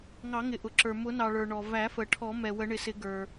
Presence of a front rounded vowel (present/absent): absent